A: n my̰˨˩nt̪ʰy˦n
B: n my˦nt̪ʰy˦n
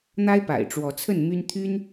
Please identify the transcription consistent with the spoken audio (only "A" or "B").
B